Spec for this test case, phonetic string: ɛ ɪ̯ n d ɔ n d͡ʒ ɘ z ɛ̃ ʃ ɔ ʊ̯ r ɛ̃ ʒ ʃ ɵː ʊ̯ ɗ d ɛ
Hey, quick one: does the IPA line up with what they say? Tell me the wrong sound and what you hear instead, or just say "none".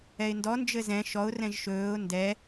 ɗ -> n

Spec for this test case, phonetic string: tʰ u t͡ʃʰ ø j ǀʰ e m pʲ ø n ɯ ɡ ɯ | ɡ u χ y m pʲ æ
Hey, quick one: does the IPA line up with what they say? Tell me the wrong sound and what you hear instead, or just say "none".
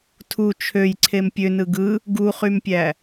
none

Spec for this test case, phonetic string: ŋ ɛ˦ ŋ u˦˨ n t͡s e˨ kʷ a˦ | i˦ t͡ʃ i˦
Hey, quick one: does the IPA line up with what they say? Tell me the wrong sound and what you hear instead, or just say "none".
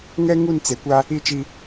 none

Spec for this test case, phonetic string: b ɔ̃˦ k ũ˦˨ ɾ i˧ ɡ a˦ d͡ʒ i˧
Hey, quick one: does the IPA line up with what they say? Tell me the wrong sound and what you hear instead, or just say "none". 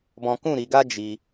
none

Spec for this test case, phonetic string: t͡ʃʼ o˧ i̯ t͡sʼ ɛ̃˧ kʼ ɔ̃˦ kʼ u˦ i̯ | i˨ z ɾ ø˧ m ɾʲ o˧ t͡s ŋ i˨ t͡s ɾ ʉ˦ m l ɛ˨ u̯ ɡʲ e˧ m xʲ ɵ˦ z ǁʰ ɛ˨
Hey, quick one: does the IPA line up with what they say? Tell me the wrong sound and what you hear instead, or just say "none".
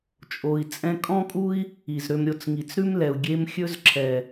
none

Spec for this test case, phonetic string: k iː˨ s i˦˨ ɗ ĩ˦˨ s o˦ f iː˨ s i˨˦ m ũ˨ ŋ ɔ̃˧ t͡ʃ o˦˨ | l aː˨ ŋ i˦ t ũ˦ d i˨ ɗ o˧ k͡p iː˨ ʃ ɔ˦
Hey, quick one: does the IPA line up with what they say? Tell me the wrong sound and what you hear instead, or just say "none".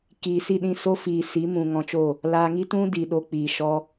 none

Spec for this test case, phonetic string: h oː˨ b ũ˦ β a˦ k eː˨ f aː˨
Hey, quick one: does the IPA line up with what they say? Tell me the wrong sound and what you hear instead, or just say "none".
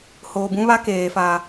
none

